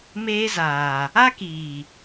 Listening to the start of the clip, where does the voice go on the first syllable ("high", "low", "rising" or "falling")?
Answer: high